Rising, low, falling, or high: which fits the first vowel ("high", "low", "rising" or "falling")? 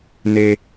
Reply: low